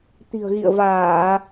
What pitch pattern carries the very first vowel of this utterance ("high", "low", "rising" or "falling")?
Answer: low